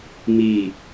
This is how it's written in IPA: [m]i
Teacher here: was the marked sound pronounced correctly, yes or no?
yes